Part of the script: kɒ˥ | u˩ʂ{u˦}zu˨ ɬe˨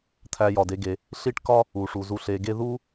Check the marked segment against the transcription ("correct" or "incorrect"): incorrect